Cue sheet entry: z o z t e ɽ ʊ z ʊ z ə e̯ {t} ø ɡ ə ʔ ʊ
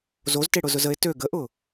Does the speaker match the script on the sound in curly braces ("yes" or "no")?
yes